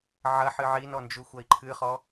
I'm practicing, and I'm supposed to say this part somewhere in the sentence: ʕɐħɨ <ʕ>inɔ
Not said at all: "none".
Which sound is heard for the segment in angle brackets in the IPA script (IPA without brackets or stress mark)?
ʕ